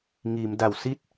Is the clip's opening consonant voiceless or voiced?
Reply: voiced